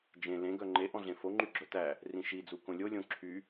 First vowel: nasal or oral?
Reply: nasal